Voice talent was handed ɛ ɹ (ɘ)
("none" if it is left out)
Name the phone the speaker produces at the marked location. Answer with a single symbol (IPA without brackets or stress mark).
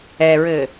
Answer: ɘ